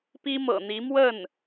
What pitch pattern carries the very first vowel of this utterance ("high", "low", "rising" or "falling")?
high